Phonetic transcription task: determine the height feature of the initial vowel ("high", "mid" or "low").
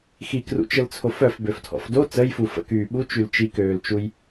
high